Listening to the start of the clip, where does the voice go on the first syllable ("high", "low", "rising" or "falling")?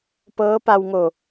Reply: rising